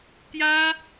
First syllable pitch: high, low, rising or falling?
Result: high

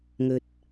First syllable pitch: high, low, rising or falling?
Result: low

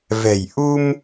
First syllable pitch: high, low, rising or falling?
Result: low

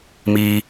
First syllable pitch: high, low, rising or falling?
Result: low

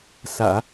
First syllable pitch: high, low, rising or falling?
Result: low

